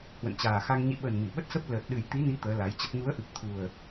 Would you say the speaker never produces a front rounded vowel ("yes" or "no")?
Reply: yes